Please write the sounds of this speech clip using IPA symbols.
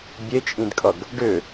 bʲ e t͡ʃʼ ĩ d kʼ ʌ ɡ | ɖ ʏ

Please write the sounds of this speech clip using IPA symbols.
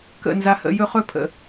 k ə̰˦˨ n z a˦ h ə̰˦ j ɵ˦ χ ɵ˦ pʰ ə̰˨

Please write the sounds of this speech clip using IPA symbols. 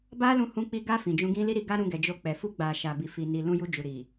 b a˦ l ũ˧ h ũ˧ k͡p i˧ ɡ a˧ f ĩ˨ d͡ʒ ũ˧ ɡ ĩ˦ l i˦ ɾ i˧ ɡ a˦ ɾ ũ˧ ɡ ɛ˨ d͡ʒ o˧ k͡p ɛ˨ f u˧ ɡ͡b a˨ ʃ a˨ b i˨ f i˨ n i˨ l ũ˧ j u˧ d͡ʒ u˨ ɾ i˨

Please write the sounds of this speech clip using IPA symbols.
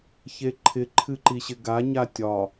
ç e ǃʰ ɪ ǃʰ ɨ ǃ i ɕ ɪ ɡ a ɲ a tʲ ɒ

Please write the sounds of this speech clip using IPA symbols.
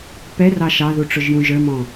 p ɛ r ɑ ʃ ɑ ð u ʈ͡ʂ ʊ ʒ j ũ ʒ ə˞ m ɔ̃

